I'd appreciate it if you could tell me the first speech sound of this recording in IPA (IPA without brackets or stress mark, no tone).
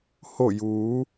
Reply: h